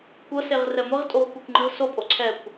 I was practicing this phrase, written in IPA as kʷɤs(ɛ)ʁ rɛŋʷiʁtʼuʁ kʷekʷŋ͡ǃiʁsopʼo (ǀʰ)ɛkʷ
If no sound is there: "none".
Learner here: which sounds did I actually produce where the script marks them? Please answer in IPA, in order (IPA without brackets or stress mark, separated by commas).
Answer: e, ǀʰ